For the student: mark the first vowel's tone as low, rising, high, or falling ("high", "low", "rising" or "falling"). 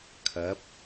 rising